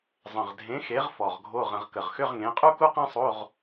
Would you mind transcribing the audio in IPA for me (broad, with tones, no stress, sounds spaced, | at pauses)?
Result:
zˤ ə̃˨˩ ʁ dʱ ẽ˨˥ x e˨˥ ʁ f ɔ˨˩ ʁ ɡʱ o˧˥˧ ʁ ə̃˧ ʁ k ə˨˩ ʁ x ʏ˧˥˧ ʁ ŋ ẽ˨˥ qʼ u˥ k u˥ q ẽ˥ sˤ o˧˥˧ ʁ